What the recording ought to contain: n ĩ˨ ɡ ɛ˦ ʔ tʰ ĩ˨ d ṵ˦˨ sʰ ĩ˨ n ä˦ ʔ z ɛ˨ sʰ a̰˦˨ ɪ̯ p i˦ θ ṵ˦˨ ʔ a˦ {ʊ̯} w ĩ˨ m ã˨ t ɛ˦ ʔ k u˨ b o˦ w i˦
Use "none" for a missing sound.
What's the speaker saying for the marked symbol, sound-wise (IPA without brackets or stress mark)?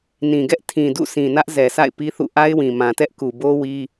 ɪ̯